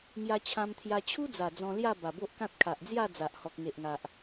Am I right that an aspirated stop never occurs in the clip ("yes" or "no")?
no